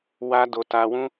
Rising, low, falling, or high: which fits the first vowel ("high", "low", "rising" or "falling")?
high